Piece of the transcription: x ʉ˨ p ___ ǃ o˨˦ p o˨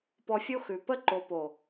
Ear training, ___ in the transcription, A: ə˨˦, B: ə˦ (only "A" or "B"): B